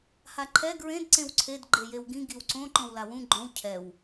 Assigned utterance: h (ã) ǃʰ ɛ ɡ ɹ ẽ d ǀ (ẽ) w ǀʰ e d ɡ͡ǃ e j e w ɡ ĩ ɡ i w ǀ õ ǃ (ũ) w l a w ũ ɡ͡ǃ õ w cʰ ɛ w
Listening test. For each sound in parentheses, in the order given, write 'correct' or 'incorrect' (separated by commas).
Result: incorrect, correct, incorrect